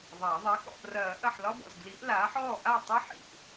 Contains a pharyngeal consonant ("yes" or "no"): yes